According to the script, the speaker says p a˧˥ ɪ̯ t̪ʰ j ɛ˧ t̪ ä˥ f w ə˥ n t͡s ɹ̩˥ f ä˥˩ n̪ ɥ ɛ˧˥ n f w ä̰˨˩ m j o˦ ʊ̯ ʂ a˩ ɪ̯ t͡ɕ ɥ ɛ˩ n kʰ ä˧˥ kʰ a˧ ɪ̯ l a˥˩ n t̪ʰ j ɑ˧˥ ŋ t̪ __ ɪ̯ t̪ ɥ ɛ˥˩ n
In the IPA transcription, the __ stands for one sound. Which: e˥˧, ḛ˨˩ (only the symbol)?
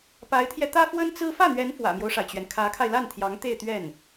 e˥˧